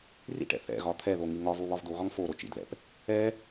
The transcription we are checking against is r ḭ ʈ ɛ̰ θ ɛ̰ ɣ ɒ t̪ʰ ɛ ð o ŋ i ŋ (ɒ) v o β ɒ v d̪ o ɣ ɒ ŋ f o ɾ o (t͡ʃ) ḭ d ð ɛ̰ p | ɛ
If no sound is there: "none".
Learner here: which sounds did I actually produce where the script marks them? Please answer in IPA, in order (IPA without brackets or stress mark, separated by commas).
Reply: ɒ, t͡ʃ